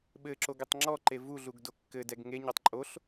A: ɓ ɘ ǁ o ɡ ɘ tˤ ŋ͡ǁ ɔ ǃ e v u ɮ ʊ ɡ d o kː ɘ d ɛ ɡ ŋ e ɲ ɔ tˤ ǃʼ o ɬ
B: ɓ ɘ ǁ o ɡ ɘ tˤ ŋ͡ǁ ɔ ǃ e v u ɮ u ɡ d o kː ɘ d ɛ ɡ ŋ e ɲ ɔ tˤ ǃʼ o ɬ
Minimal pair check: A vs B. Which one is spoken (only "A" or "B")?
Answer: B